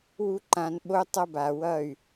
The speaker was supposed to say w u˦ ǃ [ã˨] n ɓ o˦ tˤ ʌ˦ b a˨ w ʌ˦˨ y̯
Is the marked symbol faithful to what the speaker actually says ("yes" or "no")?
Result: no